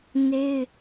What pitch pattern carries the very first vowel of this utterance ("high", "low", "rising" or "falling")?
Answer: high